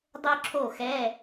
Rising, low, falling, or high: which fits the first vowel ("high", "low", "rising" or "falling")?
high